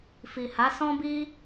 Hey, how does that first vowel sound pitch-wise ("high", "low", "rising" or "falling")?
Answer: low